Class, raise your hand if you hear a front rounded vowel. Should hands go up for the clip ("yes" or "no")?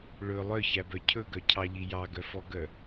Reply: yes